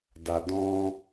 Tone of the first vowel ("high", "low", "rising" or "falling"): low